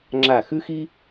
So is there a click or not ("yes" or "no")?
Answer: yes